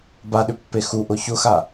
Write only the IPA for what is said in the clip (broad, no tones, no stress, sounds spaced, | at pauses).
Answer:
b a ɗ ʏ pː e x u ʔ ʊ ç ʊ x a